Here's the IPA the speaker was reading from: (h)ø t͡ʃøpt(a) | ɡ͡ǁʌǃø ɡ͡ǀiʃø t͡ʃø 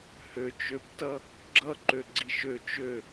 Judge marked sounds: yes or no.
yes, no

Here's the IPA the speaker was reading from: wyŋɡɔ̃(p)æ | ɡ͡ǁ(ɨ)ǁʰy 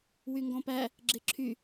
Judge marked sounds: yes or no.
yes, no

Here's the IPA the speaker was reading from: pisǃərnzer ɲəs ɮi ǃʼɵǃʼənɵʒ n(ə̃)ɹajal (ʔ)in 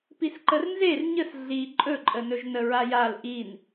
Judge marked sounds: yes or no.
no, yes

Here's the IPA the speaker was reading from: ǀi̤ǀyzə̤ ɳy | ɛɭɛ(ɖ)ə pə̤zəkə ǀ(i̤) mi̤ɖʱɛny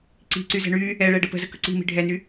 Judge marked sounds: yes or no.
yes, yes

